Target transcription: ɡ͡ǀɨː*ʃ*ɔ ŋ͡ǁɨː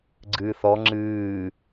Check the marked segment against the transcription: incorrect: θ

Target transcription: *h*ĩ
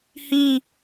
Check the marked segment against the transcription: correct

